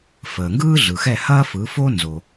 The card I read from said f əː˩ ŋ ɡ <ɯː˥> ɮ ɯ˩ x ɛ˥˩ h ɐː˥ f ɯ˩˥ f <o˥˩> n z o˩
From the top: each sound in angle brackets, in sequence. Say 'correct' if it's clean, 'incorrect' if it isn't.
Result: correct, incorrect

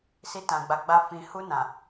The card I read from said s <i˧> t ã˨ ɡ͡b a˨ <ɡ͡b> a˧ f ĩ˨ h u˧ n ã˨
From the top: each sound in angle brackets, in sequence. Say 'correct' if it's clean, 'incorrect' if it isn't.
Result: correct, correct

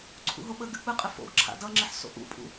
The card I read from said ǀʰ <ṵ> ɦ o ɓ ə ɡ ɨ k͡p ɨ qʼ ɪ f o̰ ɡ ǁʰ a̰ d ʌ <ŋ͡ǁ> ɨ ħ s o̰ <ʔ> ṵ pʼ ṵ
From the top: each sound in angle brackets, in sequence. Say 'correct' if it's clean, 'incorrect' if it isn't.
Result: correct, correct, correct

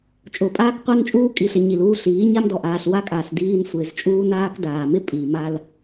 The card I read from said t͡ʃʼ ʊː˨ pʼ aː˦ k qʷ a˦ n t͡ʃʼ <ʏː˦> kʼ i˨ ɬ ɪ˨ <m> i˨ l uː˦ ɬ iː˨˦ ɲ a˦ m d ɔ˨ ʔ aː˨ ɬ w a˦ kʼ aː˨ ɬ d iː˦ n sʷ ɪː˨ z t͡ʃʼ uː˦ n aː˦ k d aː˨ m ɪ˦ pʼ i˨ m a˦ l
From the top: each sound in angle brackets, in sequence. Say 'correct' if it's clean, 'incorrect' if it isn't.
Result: incorrect, incorrect

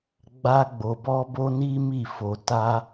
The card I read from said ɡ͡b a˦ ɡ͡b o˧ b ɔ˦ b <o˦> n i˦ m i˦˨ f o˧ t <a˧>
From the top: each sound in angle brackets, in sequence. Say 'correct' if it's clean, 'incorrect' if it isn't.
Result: correct, incorrect

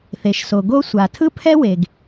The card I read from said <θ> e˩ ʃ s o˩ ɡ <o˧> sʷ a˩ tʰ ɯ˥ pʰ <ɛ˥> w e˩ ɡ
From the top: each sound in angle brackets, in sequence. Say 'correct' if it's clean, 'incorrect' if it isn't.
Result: correct, correct, correct

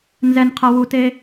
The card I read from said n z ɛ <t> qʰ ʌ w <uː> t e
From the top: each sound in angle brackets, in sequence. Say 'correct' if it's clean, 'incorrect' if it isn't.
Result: incorrect, incorrect

